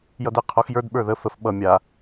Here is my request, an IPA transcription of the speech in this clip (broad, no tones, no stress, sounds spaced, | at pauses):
j ʌ d e qʰ o x j ə˞ d ɓ ə˞ ð ə f ə f ɓ ʌ mʲ a